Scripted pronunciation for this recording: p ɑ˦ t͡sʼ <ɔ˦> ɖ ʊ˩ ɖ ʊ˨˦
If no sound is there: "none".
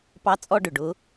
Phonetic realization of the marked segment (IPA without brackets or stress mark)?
ɔ˦